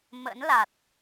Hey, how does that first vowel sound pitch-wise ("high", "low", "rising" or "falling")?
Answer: rising